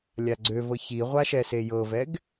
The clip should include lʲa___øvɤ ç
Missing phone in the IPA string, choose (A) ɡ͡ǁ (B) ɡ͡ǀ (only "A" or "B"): B